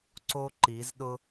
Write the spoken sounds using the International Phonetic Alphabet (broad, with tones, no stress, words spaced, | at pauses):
ǀo˦ǃi˨˦zɗʊ˦